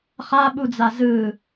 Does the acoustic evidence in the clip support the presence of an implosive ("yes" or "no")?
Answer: yes